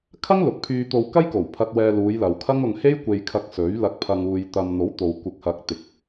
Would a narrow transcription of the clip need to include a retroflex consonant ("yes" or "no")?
no